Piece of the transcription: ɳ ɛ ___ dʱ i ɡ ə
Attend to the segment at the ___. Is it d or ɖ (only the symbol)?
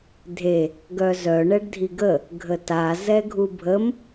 ɖ